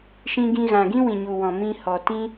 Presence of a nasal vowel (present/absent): present